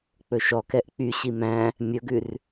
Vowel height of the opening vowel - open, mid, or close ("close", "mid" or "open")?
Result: mid